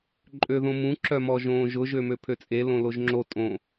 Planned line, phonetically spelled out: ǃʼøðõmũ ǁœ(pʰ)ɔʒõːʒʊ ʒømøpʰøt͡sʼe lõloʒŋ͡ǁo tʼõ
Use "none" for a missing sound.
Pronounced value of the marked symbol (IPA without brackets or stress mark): m